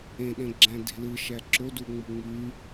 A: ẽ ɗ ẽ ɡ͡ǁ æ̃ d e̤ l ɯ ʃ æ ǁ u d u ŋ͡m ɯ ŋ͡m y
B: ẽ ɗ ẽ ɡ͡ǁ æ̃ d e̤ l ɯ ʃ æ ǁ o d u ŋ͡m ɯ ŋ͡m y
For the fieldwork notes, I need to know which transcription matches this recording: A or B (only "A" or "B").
B